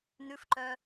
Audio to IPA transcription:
nʉfǃœ

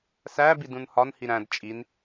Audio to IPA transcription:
sæ bidũnhɒnhi ɾæ̃d t͡ʃʼin

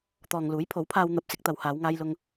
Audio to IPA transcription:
t̪ɔː˨ŋluː˨˥jpʰo˨˥wpʰaː˧w n̪ɐ˨p̚sɪ˧k̚t̪ɐ˨˧w haː˨˧wŋaː˧jlʊ˧ŋ

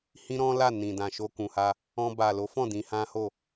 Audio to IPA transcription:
hĩ˦ɾɔ̃˦la˦˨ nĩ˨dã˨ʃo˧ kũ˨ha˧ | ɔ̃˧ ba˨lo˨˦fɔ̃˦˨ dĩ˧hã˦ho˦˨

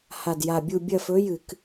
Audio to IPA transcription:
ha˨˩dja˨˩bʲu˦˨ bʲɐ˦˨fɵ˨˥ jɨ˧˩˧k

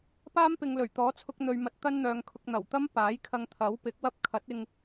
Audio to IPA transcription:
paː˥mpɪ˨ŋlɵ˨˩ɥt̪ɔː˨˥ t͡sʰʊ˧k̚n̪ɵ˨ɥmɐ˨t̚ t̪ɐ˥nn̪œː˨˧ŋkʰʊ˧k̚ n̪ɐ˨˩wt̪ɐ˥mpaː˨˥j kʰɐ˧ŋt̪ʰɐ˨˥wpɪ˨˥k̚wɐ˥p̚ kʰɐ˨˥t̚ɪ˧ŋ

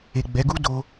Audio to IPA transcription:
e˨ɡ͡bɛ˨˦ɡu˦ do˧

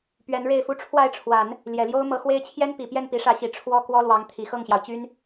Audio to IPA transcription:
pɥɛ˧˥nɻe˥˩ɪ̯fu˥ ʈ͡ʂʰwa˥˩ɪ̯ʈ͡ʂʰwa˨˩˦n | ljɛ˨˩ljo˥ʊ̯ mɤ˧˥xwe˥ɪ̯ t͡ɕʰjɛ˥npi˨˩pjɛ˥˩n pi˧˥ʂä˧˥ɕi˨˩ ʈ͡ʂʰwɔ˥ kwɔ˥lwɑ˧˥ŋ t̪ʰi˨˩xɤ˥˩ŋɕjɑ˩ʊ̯ t͡ɕy˥n

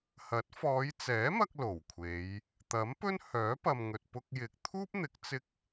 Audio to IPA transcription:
hɐ˨˥t̚fɔː˨˧j t͡sɛː˨˥mɐ˧k̚ lo˨˩wkʷʰe˨˧j | t̪ɐ˨˥mpɵ˥nhœː˨˥ pɐ˨m ŋɵ˨t̚pʊ˧k̚jɪ˨k̚ t̪ʰuː˥p̚n̪ɪ˨˥k̚ t͡sɪ˥k̚

